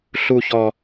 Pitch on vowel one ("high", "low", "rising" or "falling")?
high